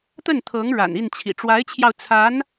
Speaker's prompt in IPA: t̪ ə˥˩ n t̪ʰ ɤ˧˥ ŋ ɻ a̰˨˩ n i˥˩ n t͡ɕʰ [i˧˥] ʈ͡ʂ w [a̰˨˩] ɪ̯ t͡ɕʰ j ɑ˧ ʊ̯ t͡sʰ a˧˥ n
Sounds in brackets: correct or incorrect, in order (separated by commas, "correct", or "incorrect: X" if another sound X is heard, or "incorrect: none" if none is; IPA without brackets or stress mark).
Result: incorrect: ḭ˨˩, incorrect: a˧˥